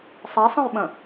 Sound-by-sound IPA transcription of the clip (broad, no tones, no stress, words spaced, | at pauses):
sˤɛsˤə̃jɓə̃